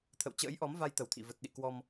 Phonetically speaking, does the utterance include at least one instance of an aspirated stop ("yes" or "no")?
yes